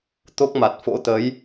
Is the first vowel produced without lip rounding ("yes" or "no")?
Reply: no